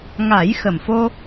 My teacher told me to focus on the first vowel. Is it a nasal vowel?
no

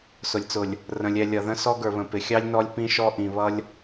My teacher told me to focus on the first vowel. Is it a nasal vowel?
no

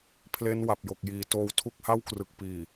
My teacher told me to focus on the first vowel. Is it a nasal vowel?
no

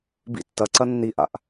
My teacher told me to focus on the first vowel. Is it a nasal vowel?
no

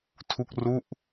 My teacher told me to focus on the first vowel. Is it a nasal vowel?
no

